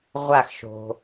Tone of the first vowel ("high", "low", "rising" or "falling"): falling